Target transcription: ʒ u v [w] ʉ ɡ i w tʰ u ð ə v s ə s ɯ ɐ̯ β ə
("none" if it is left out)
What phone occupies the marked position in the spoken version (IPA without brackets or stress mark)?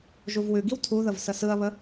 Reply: w